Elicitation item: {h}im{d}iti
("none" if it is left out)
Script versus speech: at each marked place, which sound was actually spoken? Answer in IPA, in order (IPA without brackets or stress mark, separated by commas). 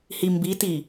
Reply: h, b